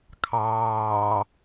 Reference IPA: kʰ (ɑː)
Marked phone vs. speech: correct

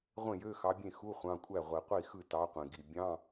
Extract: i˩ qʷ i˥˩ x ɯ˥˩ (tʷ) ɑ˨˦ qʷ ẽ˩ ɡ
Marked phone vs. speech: incorrect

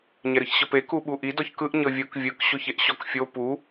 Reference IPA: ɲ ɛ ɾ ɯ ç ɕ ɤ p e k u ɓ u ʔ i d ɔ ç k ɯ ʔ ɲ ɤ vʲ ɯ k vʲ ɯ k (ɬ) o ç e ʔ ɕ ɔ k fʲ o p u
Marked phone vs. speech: incorrect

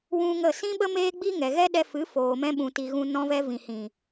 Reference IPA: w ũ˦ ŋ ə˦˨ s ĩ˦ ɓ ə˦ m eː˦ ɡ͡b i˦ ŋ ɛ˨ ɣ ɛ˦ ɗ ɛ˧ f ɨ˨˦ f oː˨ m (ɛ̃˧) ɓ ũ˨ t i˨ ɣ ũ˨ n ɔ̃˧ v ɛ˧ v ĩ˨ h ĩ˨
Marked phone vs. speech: correct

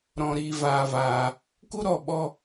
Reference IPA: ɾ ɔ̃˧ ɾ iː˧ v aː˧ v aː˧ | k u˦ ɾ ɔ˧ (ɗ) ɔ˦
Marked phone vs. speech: incorrect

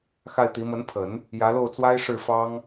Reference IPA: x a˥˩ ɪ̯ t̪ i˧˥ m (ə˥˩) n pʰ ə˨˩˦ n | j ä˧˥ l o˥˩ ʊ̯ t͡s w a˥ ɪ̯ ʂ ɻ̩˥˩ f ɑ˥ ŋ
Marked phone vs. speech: incorrect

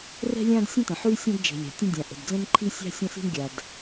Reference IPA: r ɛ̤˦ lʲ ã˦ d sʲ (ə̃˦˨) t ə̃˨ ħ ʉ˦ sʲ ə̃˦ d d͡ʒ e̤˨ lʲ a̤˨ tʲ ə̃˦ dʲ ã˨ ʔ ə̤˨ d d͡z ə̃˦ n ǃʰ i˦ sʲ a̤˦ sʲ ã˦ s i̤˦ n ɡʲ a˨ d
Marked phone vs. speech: incorrect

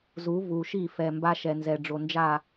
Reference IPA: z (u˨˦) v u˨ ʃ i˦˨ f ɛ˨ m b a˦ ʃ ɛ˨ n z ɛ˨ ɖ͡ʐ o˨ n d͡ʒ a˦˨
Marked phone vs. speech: correct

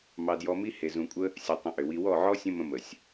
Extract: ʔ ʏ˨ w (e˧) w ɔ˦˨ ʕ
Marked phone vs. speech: incorrect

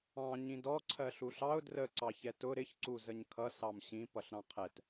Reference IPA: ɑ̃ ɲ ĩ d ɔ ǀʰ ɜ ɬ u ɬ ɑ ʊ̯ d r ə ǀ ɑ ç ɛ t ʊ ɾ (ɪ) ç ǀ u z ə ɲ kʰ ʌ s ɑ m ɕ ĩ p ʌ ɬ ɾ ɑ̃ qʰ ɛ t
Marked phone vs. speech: correct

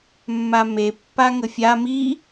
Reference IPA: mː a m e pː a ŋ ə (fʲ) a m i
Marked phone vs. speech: correct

